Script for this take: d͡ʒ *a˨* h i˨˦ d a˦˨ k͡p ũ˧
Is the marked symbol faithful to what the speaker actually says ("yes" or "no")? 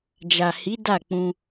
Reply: yes